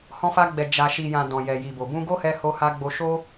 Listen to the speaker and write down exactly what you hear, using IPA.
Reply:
hɔ̃˧fa˧ɡ͡bɛ˨ d͡ʒa˨ʃi˨jã˨ dɔ̃˨jɛ˨ji˨bo˨ bũ˧ɡo˦hɛ˧ ho˧ha˧ ɡ͡bo˧ ʃo˦

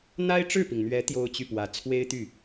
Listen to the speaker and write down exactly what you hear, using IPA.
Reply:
n̪a˥ɪ̯ʈ͡ʂɻ̩˥˩pi˩ŋn̪ɥɛ˧˥ t̪jo˥ʊ̯t͡ɕy˥˩pwä˧˥ t͡sʰwe˥ɪ̯t̪y˥˩

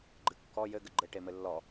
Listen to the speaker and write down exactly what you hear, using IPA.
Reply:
ɡ͡ǃɨkːɔ jɘ ɡɘɡ͡ǃɘ ʈemɘlːɔ

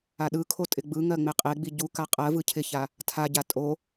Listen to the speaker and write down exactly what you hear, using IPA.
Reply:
aɗɯkʰo tʼɪɡ͡bɯŋɜ ŋ͡meqʼeɡ͡bi ɟuka qʼɜvɯ cʰɪça | tʰaɟa tʼo

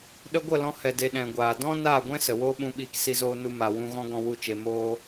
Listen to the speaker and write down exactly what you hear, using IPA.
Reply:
ɗə˧ɡʷə˦˨lɔ̃˧ hɛ˨de˨ ɗɛ̃˨ɡʷaː˨dɔ̃˦ naː˦˨ɡʷɛ̃˦ sə˨woː˦ɓũ˧ɓiː˧k si˦zoː˦ nu˦ma˧ wũ˧ɣɔ̃˦ ɡɔ̃˦wu˦˨t͡ʃe˧ moː˦

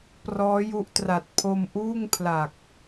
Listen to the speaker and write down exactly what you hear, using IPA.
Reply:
prɔː˦˥ju˦˥ʔtra˨˩t̚ pʰo˧mʔuː˥˩ŋpʰla˨˩k̚

